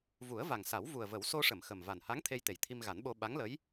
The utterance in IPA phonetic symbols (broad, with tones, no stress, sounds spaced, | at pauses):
v u˨˩˦ ə̯ v a˨˩ ŋ s a˨˩˦ w v u˨˩ ə̯ v ə˨˩˦ w s o˧ ʂ ə˨˩˨ m x ə˨˩ m v a˨˩ n h a˧˥ ŋ t̪ʰ e˧ j t̪ e˨˩ j t̪ʰ i˧ m ɣ a˨˩˦ n ɓ o˧ ɓ a˧˥ ŋ l ə˧˥ j